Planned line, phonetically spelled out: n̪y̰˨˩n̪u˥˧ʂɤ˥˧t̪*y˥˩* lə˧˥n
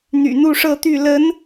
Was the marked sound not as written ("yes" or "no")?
no